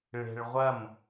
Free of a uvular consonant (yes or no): no